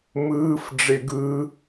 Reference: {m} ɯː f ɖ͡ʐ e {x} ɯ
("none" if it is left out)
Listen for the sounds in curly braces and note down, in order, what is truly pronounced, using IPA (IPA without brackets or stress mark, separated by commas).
m, ɡ